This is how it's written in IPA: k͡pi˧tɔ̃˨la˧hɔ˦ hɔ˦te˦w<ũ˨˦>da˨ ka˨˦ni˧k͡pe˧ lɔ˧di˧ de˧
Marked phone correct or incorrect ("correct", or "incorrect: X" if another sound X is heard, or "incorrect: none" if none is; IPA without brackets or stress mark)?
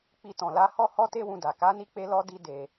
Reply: incorrect: ũ˧